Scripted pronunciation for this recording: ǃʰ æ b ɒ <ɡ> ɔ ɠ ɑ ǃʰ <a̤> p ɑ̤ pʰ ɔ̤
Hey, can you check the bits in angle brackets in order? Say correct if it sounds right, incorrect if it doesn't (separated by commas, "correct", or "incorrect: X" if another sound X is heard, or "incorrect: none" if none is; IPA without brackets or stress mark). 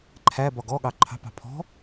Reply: correct, incorrect: ɑ̤